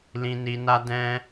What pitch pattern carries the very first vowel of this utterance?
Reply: low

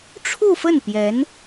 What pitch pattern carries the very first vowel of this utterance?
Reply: falling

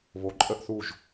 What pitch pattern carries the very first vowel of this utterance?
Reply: rising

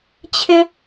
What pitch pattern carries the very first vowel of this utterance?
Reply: high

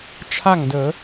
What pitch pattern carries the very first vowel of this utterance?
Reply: falling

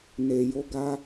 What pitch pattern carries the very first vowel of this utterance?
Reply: low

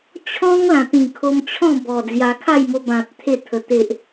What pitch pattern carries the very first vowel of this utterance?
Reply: high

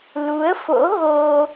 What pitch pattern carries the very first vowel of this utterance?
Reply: rising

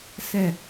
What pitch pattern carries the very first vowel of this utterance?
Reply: falling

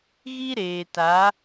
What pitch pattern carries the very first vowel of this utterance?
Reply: high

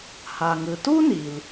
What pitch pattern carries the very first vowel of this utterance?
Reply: low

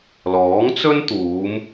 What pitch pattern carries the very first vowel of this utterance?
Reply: rising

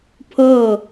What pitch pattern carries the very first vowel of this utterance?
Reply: falling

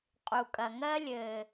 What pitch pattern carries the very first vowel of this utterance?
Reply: low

